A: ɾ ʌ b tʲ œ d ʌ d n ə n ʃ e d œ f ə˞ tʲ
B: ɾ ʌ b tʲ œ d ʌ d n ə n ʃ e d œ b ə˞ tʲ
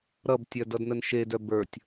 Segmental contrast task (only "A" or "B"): B